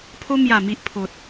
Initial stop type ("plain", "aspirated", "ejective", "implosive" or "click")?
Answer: aspirated